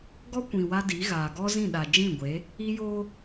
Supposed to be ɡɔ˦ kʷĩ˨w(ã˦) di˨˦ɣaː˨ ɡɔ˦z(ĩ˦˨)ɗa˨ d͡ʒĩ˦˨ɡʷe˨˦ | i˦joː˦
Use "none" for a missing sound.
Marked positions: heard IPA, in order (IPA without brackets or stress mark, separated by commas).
a˦, ĩ˦˨